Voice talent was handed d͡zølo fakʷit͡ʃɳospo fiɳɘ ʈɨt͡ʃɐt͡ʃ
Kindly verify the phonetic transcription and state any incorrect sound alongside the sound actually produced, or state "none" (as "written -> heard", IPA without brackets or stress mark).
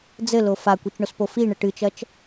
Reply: ø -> ɘ